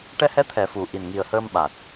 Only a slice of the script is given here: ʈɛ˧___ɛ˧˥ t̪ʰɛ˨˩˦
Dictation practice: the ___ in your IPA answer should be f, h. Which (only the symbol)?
h